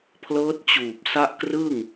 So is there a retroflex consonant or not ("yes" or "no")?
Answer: no